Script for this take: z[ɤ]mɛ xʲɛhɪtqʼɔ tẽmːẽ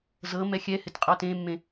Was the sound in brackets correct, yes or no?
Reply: yes